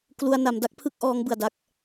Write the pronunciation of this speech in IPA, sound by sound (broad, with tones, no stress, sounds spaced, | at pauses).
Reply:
k l u˧ a̯ n a˩˦ m d a˦˥ k̚ pʰ ɯ˥˩ k̚ ʔ ɔː˦˥ ŋ b ɯ˨˩ a̯ d a˦˥ k̚